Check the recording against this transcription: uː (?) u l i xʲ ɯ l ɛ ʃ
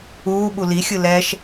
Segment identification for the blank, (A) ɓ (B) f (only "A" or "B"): A